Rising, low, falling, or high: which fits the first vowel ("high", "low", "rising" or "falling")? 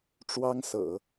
high